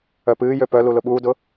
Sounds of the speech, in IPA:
œpɨːjø pœlu lʊɓuːdʊ

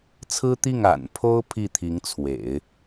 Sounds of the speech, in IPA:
t͡sʰɹ̩˥t̪i˥˩ŋ a̰˨˩n pʰo˥ʊ̯ pʰi˥˩t̪ʰi˧˥ŋt͡sʰwḛ˨˩˦ɪ̯

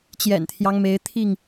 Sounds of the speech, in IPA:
t͡ɕjɛ̰˨˩nt̪ʰjɑ˦ŋme˨˦ɪ̯ t̪ʰi˥˨ŋ

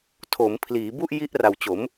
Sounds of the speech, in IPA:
tʰo˩˦mpʰliː˩˦ bu˥˩ʔji˦˥ʔra˨˩wt͡ɕo˩˦m

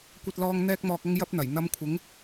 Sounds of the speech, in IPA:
kʷɐ˧t̚lɔː˧ŋ n̪ɛː˧k̚mɔː˨k̚ɐ˧ŋ jɐ˥p̚n̪ɐ˨˩j n̪ɐ˧mkʷʰɪ˨˥ŋ

